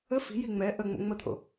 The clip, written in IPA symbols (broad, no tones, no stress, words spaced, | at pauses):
ə fi̤ji ŋ͡mɛ ʔə ŋ͡mo̰ŋ͡mət̪ʰo̰